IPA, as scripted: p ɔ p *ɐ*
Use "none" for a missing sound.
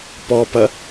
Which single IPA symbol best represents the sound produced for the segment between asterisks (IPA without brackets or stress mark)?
ɐ